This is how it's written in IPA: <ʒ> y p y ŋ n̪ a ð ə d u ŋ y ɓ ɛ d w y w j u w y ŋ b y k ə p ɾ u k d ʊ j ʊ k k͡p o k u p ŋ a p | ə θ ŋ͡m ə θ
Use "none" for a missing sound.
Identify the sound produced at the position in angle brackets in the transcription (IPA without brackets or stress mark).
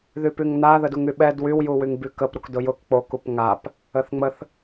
ð